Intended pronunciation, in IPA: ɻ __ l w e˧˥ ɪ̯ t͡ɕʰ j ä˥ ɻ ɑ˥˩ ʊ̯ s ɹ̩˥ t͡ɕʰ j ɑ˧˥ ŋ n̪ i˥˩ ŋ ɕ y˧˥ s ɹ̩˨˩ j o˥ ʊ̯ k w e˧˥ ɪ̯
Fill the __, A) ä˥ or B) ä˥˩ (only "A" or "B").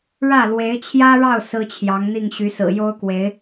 B